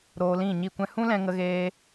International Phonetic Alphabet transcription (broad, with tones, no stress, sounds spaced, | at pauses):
ɾ oː˧ l ĩ˦˨ ɲ i˦˨ kʷ ɛ̃˦ h ũ˦ l ɛ̃˧ ŋ ə˧ ɣ eː˧